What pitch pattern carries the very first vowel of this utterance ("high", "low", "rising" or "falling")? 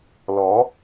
rising